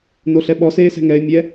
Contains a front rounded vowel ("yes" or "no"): no